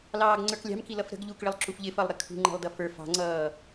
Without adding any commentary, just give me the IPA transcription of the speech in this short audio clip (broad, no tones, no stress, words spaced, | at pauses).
lɑːɡŋ͡ǀə˞klʲɑ̤m kilʌfɾə̤ɡ ʎukɭɪlˠ ǁufʎɪfʌlˠɾɪ kʰṳŋ͡ǃɛ̤lˠdʌ fə˞f ɑ̤ŋ͡ǀʌː